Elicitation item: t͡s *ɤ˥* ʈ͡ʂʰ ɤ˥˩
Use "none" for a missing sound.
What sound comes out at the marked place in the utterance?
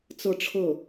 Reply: ɤ˥˧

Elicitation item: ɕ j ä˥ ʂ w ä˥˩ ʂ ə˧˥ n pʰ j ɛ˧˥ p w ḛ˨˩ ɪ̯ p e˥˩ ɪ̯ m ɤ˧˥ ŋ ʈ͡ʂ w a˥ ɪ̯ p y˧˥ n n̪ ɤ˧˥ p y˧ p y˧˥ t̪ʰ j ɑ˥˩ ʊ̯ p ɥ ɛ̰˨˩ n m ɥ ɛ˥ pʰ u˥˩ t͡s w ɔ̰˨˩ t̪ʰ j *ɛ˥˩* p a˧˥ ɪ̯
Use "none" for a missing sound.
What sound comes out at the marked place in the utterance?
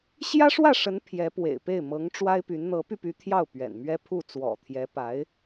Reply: ɛ˧˥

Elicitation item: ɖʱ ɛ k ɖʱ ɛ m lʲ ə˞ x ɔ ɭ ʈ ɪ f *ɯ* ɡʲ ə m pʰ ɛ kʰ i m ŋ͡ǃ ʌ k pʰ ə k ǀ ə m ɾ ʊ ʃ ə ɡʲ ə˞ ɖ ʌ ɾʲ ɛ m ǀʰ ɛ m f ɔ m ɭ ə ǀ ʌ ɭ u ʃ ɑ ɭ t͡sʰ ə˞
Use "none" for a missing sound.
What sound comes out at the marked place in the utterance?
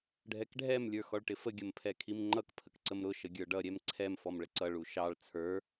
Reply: ə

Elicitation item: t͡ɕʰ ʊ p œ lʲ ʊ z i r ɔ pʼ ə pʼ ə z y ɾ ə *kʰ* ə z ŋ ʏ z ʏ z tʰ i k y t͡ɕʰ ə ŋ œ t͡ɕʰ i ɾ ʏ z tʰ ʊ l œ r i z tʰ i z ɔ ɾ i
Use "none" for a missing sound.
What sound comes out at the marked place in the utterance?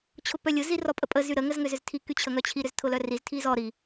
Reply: ŋ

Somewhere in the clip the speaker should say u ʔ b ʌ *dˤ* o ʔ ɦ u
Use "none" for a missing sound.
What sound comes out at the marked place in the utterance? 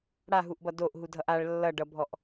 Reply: d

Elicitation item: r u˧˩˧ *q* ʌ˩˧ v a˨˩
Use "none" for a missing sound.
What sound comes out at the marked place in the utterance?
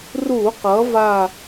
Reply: q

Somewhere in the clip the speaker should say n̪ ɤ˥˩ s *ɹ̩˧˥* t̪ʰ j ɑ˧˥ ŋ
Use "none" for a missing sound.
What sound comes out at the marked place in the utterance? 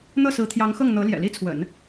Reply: ɹ̩˧˥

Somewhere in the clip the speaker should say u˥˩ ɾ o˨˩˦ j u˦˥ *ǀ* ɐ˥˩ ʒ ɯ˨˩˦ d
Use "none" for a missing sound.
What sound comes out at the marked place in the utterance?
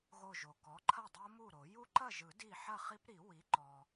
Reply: ǃ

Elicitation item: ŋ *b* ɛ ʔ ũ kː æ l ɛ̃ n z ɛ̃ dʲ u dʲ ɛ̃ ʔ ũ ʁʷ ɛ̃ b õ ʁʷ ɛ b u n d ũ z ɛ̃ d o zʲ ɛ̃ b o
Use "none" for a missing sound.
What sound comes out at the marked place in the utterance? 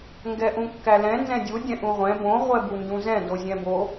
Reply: ɡ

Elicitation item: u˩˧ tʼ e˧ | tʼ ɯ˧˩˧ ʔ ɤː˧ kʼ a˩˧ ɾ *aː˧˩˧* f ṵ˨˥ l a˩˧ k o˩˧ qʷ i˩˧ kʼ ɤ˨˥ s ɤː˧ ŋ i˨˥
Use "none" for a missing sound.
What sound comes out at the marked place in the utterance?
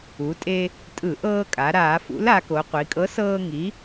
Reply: aː˧˩˧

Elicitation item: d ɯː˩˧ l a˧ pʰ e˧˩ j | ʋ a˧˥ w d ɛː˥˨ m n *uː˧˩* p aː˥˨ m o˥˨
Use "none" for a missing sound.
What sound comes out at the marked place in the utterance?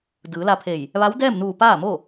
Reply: uː˧˩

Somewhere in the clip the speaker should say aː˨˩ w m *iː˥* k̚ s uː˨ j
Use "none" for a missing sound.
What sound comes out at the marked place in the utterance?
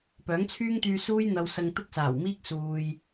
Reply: iː˥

